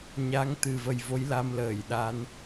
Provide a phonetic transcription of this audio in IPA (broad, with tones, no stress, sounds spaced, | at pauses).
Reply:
ɲ a˨˦ ŋ t̪ ɨ˨˩ v ə˨˩ j v o˨˦ j l a˧ m l əː˧˩ j ɗ a˨˦ n